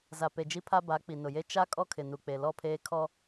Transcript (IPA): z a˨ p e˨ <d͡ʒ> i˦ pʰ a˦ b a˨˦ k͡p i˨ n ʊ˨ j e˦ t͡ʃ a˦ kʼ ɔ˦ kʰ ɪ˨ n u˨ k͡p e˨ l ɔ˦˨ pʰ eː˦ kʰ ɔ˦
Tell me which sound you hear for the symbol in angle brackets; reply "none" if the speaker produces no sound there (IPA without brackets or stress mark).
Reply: d͡ʒ